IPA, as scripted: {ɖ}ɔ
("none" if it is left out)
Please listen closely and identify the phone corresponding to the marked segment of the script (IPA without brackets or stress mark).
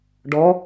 ɖ